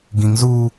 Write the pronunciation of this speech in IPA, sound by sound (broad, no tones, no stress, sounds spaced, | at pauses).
ɡ ĩ ŋ z uː